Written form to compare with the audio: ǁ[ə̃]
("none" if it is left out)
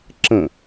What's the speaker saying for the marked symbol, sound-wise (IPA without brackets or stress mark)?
ə̃